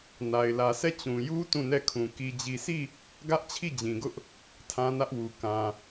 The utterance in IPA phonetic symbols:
na˨ɪ̯lä˨sɛ˦˨ t͡ɕũ˨ju˦ tũ˦˨nɛ˦˨kʰũ˨ ki˨d͡ʑi˨sʰi˦˨ | ɡä˦ʔ t͡ɕʰi˦˨d͡ʑĩ˨ɡʊ˦ʔ | tʰã˦nä˦ʔwu˨ kã˨

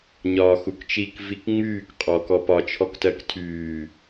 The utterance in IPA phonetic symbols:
ɲɒːxukt͡ʃik vikŋ͡myːk qʼɔk ɔpɒ t͡ʃʰɔktɜktʰyː

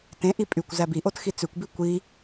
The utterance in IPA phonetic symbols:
tẽʔi pʼykʷ zæbiʔot xit͡sʉkʷbi kʷi

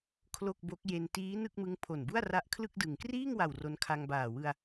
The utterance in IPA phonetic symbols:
kʰlo˥˩k̚bo˦˥k̚ je˧ntiː˦˥ nɯ˥˩k̚mɯ˦˥ŋ pʰo˨˩nbu˥˩a̯ ra˦˥ʔkʰlɯ˥˩k̚dɯ˨˩ŋ kriː˥˩ŋwa˨˩w ro˧nkʰa˧ŋbaː˨˩ wɯ˧a̯

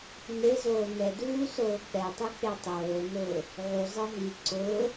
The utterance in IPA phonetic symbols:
nezoː nɛduː soːk͡pɛtˤi k͡petˤoːnʊː | ʕuzˤɪ ɦi ǀʊː

